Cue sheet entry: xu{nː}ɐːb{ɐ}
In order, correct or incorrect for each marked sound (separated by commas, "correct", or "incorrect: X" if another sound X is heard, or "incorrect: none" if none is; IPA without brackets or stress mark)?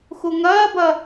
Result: incorrect: ŋ, correct